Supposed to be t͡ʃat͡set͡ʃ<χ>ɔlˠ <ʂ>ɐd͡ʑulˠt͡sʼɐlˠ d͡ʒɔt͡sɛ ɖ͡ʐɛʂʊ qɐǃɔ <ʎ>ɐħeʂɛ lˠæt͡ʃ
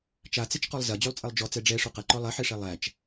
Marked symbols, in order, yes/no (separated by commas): no, no, no